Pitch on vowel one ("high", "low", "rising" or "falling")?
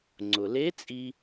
low